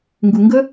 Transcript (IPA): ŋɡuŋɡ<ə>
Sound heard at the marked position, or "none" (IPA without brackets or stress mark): ə